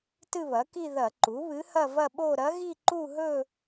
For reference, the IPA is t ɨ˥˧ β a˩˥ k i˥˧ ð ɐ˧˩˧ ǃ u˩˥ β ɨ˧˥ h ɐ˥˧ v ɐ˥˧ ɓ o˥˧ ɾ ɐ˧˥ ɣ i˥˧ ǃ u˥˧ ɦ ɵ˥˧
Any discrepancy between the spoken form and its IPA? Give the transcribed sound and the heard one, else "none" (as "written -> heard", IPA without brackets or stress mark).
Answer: a˩˥ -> ɐ˩˥